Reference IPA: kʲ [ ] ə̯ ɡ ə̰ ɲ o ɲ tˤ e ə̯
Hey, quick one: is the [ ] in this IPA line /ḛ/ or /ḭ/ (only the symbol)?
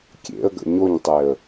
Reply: ḛ